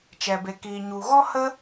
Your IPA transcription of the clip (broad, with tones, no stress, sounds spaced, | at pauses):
t͡ʃ ɛ˨ b e˨ k iː˨ ɲ u˨ ɣ ɔ˦ h ə˦